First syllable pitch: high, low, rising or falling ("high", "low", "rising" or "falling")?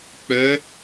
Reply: rising